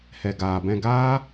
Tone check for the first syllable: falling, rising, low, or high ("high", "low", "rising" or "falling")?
low